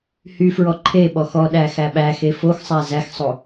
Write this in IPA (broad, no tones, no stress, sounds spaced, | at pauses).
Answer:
h y f ɹ ɔ ǃʰ e ɓ ɔ x ɔ ɗ æ x æ ɓ æ x e f o x sˤ æ z æ x sˤ o